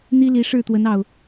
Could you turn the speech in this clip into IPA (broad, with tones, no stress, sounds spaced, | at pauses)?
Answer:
n̪ i˦ l i˨˦ ʂ ɻ̩˥˨ t̪ w ə˨˦ n ɑ˨˩ ʊ̯